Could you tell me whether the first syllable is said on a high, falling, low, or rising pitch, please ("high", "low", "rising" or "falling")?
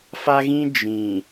high